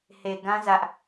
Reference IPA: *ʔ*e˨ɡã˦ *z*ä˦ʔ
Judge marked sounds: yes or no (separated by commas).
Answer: no, yes